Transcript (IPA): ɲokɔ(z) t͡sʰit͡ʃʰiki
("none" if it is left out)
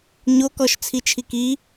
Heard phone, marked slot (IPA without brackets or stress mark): ʃ